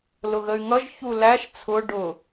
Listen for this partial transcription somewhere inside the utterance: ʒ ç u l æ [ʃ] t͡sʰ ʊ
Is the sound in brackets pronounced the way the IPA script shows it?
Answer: yes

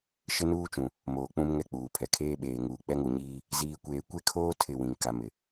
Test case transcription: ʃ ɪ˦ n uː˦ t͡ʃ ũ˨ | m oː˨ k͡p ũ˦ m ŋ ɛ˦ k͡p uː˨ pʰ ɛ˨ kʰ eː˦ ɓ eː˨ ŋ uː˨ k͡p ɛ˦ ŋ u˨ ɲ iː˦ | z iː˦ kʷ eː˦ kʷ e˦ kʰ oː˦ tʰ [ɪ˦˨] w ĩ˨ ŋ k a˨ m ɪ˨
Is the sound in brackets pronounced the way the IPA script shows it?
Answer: yes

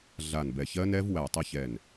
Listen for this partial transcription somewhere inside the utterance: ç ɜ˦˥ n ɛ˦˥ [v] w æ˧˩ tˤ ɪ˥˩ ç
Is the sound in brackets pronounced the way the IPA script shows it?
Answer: yes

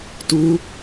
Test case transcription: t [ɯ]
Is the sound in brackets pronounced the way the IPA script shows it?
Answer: no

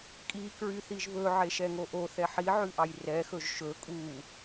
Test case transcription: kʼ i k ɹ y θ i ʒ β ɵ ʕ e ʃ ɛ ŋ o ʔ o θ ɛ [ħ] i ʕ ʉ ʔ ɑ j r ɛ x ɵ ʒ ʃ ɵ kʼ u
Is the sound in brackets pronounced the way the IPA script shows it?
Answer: yes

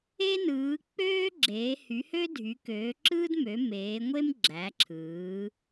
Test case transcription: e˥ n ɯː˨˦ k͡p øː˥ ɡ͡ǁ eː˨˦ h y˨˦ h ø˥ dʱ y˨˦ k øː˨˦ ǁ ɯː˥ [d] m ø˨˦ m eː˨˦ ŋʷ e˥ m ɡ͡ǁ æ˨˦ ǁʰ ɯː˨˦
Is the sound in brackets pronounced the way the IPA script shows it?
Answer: yes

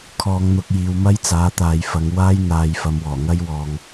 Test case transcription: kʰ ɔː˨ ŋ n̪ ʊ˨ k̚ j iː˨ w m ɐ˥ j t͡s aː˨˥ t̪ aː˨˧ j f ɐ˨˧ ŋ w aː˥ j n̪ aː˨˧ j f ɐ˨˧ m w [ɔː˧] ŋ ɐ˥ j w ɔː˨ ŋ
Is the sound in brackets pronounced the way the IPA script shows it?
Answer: no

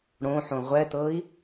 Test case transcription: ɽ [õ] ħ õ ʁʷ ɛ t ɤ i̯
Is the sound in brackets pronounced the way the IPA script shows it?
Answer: yes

